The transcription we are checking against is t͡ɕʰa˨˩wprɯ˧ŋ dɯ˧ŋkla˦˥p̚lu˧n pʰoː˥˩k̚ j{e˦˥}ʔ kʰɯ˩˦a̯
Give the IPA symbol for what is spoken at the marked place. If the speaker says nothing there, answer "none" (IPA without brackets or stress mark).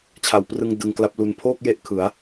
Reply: e˦˥